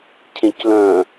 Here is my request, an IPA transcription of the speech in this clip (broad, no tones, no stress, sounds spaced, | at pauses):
cʰ ẽ c l œ̃